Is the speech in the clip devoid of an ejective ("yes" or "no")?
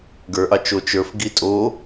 no